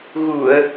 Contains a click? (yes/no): no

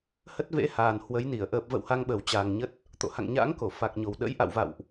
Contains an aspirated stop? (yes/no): no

